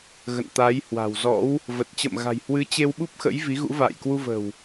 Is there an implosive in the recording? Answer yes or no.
yes